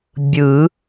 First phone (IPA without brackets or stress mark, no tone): bʲ